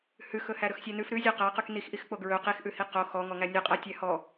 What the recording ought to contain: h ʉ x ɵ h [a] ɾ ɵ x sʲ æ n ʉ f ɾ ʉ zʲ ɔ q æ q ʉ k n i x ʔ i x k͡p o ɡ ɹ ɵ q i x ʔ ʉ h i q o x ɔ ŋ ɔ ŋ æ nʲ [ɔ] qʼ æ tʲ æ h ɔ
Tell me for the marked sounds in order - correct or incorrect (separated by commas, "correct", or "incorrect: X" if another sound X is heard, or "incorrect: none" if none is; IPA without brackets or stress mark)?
incorrect: æ, correct